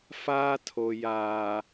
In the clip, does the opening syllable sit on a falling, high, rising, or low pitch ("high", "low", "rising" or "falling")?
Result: high